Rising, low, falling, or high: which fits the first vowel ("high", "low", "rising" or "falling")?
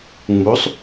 rising